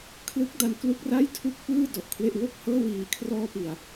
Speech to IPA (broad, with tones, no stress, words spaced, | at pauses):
kʰlɯ˦˥k̚ da˧n klu˦˥k̚ra˥˩j tʰu˥˩k̚ pɯː˥˩ dɔ˨˩ʔkʰwe˥˩ʔ wo˥˩k̚hɤː˥˩ wiː˨˩kʰrɔː˧pi˨˩a̯